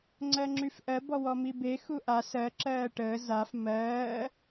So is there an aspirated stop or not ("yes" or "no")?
no